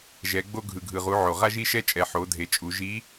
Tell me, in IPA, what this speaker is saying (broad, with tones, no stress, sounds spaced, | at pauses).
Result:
ʒ ɛ˩˧ ɡ͡b o˧ ɡʱ ɯ˩ ɡʱ ɯ˩ ʁ u˩˧ ʕ o˩ ʁ a˧ ʒ i˧ ʃ ɛ˧ t͡ʃʼ ɛ˩˧ ħ o˩˧ dʱ e˩˧ t͡ʃʼ u˩˧ ʒ i˧˥